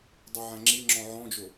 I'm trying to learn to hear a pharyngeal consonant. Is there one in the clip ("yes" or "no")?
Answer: yes